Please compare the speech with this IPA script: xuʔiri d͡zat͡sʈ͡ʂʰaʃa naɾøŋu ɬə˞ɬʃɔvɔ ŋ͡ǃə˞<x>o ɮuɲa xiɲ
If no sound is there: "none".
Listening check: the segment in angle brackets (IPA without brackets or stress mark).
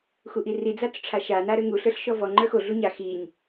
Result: x